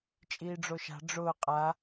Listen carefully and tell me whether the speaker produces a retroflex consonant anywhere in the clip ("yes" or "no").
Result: yes